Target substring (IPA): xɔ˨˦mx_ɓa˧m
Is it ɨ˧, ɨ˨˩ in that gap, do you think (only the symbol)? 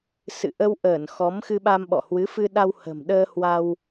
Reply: ɨ˧